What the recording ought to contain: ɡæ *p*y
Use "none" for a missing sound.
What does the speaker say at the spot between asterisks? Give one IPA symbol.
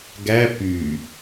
p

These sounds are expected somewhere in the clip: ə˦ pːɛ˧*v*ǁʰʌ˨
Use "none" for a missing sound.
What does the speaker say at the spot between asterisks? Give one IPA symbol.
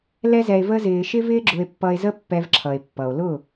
v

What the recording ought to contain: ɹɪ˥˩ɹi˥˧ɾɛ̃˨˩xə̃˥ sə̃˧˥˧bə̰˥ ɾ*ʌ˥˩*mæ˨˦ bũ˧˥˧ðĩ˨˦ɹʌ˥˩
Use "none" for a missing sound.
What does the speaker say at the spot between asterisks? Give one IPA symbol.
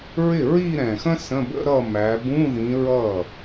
ʌ˥˧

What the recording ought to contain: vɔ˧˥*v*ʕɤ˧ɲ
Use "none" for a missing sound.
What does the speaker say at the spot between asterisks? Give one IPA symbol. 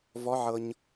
none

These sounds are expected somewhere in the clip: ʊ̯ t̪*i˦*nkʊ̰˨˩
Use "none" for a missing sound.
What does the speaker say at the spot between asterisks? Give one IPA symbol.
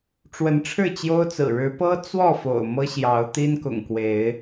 i˦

